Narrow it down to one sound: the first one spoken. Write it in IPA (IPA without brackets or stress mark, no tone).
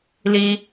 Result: l